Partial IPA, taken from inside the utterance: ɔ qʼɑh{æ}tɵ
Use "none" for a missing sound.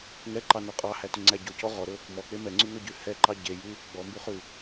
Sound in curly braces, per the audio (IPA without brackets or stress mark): æ